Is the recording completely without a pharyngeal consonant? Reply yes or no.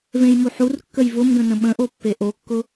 no